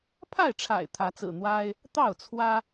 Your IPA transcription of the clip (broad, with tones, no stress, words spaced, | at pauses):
pʰa˥˨ɪ̯ʈ͡ʂʰa̰˨˩ɪ̯ t̪ʰä˨˦t͡sɹ̩˨˩ n̪wa˦ɪ̯ | t̪ɑ˥˨ʊ̯t͡sʰwä˦